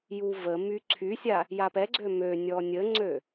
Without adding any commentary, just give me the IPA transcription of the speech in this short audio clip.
j u v ə m y ǀʰ y sʲ a | j a p ɛ ɡ͡ǀ ø m ø nʲ ɔ nʲ ə ŋ͡ǀ ø

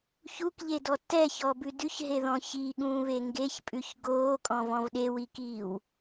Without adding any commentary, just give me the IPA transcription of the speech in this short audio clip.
ç u k ʎ e d ɔ t ɛ ç ɔ b ʉ d ʉ ç ɦ e ð ɔ̃ ç i ɠ ũː β e ŋ ɡ e ç pʼ ʉ ç ɡ oː kʼ ɔ̃ v ɔ̃ v ɗ e w i k iː w

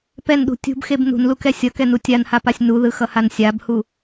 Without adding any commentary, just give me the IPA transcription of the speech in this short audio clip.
p ɛ n ɗ ṳ tʲ ṳ b x e b n ṳ n l u k ɛ sʲ ʌ k ɛ n u tʲ a n h a p a sʲ n u ð ɯ x ʌ h a n sʲ a b h u

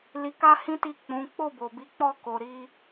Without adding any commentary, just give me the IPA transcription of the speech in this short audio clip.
l i˧ k a˦ h ĩ˦ t i˦˨ k͡p ũ˨˦ k͡p o˦˨ b o˨ b i˨˦ k͡p ɔ˦˨ k o˧ ɾ i˦

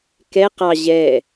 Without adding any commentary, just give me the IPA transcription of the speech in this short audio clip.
k ɛ q ɑ ʑ ɛ

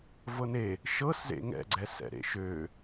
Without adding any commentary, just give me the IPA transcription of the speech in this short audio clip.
v ɤ n e | ʃ ɤ s z ḛ ŋ ɛ̰ ɡ͡ǀ ɛ s ɛ̰ ɾ ḛ ʃ ø

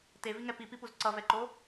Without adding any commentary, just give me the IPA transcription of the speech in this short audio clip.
t e v i ŋ ɛ p i p i p u z ǀ ʌ v ɛ ǃ o

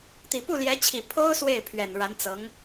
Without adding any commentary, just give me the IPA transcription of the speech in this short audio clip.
t̪ i˨˩ p u˥˩ l j ɛ˧˥ t͡ɕʰ i˨˩ pʰ o˥ ʊ̯ s w e˥˩ ɪ̯ pʰ ɥ ɛ˨˩ n ɻ a˧˥ n t͡s ɤ˧˥ ŋ

